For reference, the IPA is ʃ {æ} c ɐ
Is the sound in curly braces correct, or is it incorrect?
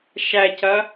correct